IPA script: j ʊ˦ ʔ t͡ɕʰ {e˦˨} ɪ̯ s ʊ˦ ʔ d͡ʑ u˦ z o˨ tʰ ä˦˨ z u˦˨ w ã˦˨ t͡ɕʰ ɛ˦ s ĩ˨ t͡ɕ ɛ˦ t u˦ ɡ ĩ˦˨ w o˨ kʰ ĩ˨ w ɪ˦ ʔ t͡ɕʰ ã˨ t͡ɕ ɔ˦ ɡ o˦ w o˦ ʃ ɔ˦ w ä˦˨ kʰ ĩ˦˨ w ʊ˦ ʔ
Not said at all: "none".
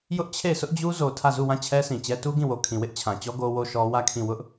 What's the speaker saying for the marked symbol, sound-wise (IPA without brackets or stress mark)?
e˦˨